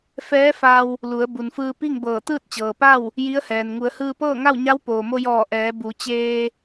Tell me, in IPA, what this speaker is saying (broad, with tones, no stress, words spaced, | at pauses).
fɛː˧˥fa˧w | lu˩˧ə̯ bu˩nfɯː˧ pi˥˨ŋbɤː˧˩ t̪ɯː˥˨t̚t͡ɕɤː˩pa˥˨w | ji˧˥ə̯hɛː˩n ŋu˩˧ə̯hɯː˧ pɤː˥˨ŋa˥˨w ɲa˧˥w poː˩mo˧jɔː˧˩ ʔɛː˩˧ bu˩˧t͡ɕeː˧